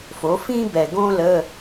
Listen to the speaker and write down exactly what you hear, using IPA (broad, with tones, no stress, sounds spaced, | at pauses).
f o˩˥ f ĩ˥ b ɛ˨˩ ɡ õ˥ l ə˧˥˧